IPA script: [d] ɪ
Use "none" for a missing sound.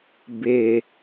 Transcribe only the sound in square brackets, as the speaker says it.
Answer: b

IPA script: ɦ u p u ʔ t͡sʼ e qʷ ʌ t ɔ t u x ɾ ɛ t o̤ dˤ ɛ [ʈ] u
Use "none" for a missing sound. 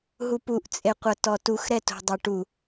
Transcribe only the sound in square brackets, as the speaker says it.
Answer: ʈ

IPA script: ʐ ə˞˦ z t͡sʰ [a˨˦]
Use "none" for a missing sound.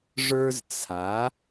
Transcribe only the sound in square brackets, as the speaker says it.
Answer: a˨˦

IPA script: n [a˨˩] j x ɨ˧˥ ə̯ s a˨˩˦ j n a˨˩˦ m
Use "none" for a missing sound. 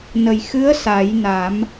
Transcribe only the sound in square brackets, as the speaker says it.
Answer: ə˨˩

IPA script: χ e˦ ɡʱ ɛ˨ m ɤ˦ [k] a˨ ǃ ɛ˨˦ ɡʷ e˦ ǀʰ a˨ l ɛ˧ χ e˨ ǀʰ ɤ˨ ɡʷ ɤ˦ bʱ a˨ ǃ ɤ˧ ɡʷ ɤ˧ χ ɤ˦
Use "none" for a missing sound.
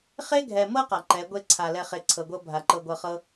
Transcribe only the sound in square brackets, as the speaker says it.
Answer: q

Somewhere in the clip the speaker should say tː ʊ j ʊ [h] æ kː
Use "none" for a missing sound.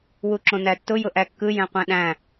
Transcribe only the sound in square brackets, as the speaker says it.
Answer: ʔ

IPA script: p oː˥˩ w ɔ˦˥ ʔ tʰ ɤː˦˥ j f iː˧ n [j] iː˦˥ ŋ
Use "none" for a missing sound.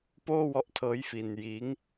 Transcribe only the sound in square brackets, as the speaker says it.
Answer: j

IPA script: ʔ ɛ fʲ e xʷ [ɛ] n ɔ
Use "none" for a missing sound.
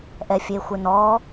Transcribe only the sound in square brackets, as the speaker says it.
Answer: ɪ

